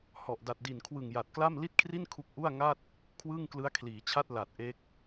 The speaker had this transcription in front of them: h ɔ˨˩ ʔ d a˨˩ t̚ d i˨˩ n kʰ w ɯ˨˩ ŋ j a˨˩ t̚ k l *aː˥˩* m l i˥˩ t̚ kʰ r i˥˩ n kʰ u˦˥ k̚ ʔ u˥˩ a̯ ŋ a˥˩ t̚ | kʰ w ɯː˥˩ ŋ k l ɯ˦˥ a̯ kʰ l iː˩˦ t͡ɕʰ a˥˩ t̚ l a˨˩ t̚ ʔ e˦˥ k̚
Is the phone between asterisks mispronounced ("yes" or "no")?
yes